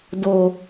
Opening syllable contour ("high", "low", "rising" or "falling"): low